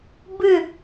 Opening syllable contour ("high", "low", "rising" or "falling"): falling